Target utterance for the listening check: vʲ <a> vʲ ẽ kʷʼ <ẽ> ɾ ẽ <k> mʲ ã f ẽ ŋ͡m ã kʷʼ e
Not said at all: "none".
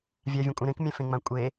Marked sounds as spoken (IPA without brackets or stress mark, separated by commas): a, ẽ, k